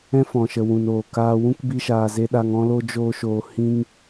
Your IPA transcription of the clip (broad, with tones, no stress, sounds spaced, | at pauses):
ɛ̃˦ f ɔ̃˨ ʃ ə˨ w ũ˨ n oː˨ k aː˧ w ũ˦ k b i˧ ʃ aː˨ z e˧ ɗ a˧ ŋ ɔ̃˦ l o˦ d͡ʒ oː˦ ʃ oː˧ h ĩ˧ ŋ